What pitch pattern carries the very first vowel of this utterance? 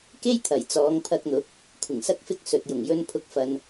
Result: high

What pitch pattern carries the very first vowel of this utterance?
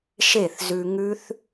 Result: falling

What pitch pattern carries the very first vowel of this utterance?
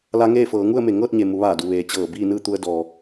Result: rising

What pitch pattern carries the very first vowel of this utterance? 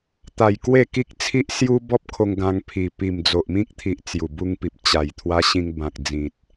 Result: low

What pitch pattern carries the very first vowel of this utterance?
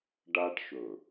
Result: high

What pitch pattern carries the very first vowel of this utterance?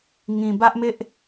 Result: low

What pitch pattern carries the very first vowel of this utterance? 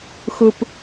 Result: low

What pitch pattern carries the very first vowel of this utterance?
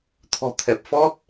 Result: low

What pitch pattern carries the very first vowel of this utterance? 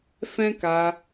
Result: high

